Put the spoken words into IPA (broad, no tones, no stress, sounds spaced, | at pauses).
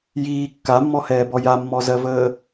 j iː kː a mː ɔ h ɛː b ɔ j a mː ɔ z ɜ v əː